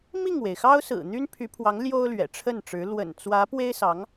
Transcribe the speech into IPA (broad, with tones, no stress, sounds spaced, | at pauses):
m i˥˩ ŋ w e˩ ɪ̯ x ɑ˥ ʊ̯ s ɹ̩˨˩ n̪ y˥ n pʰ y˧˥ pʰ w ɑ˧˥ ŋ l j o˥ ʊ̯ l ɥ ɛ̰˨˩ ʈ͡ʂʰ ə˥˩ n ʈ͡ʂ ɻ̩˧˥ l w ə̰˨˩ n t͡s w ä˧˥ p w e˥ ɪ̯ s ɑ˧˥ ŋ